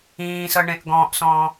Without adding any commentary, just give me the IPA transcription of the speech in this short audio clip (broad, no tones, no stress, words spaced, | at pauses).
ĩːsɤ ɳẽʔɡɔ̃ːʔsɔ̃ː